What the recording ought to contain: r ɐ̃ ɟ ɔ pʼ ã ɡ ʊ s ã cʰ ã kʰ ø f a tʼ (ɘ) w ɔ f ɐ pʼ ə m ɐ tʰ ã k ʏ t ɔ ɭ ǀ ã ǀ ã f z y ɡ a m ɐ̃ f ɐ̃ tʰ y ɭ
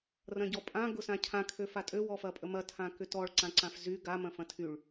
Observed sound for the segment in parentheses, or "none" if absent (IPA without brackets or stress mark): ø